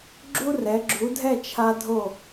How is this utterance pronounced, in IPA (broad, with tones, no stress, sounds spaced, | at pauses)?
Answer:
ɡ͡ǁ u˥ r ɛ˩˧ ɡ͡ǁ u˩˧ dʱ ɛ˥˧ t͡ʃʰ a˧ dʱ o˧˩